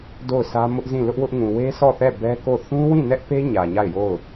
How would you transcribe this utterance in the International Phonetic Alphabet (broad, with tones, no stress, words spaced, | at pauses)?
do˦˨ʊ̯sä˦ mʊ˦ʔzĩ˦˨ lʊ˦ʔwʊ˦ʔŋũ˨ we˦sɔ˦˨θɛ˦˨ bɛ˦ko˦˨ θũ˦wĩ˦˨nɛ˦ʔpe˦ ɲä˨ɲa˦˨ɪ̯jo˦˨ʊ̯